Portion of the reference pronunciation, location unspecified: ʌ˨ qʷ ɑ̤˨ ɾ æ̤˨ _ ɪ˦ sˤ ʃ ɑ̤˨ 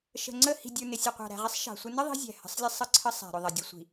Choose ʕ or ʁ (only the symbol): ʁ